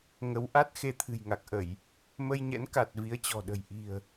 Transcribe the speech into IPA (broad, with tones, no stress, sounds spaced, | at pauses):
ŋ ə˨˦ w ʔ a˦˥ t̚ x e˧ t̪ʰ ɨ̤˨˩ j ŋ a˨˩ k̚ ʔ ə˧˩˨ j | m ə˧ j ɲ ɛ̰˧˥ n k a˨˩ t̚ v i˨˦ ə̯ t͡ɕ ɔ̤˨˩ ɗ ə̤˨˩ j ʔ i̤˨˩ ə̯